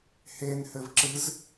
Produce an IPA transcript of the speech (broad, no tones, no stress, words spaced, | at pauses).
henhɘv ǁɨz